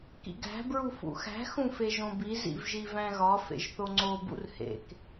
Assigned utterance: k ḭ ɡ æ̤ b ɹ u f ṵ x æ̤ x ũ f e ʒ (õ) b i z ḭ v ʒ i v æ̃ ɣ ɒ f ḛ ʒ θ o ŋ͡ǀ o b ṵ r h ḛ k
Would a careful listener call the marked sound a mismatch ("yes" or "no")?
no